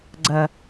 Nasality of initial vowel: oral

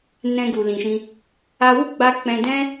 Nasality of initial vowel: nasal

